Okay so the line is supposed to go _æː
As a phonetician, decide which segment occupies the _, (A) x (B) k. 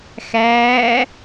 A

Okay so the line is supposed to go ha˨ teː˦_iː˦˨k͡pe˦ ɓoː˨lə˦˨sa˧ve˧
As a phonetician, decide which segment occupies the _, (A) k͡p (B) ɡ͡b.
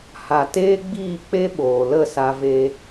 B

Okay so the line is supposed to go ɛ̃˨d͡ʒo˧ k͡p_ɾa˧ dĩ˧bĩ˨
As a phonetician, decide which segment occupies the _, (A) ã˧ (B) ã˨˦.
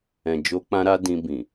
A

